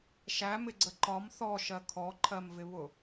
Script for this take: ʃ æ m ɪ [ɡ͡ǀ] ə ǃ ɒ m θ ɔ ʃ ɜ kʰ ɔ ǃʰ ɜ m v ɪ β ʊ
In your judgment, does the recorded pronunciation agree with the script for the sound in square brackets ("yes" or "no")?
yes